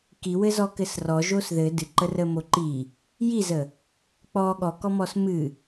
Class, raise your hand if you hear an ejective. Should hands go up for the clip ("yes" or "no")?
no